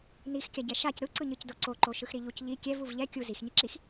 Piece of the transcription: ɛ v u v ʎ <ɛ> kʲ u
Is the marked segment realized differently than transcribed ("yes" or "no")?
no